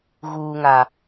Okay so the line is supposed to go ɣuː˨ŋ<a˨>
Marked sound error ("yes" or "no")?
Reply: no